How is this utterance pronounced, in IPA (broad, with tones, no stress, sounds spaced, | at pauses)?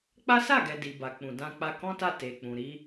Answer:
k͡p a˦ s a˦˨ ɡ ɛ˨ d i˨ b a˨ k͡p ũ˨ d ã˧ k͡p a˧ k ɔ̃˦ t a˦˨ t e˨ k͡p ũ˨ ɾ i˨˦